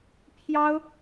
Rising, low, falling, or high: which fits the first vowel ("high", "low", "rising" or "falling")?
high